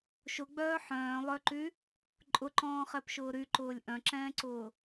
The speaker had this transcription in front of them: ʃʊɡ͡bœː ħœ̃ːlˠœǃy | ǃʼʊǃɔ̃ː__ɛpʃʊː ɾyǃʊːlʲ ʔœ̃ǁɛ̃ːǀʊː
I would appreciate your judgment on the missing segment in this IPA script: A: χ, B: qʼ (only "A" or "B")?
A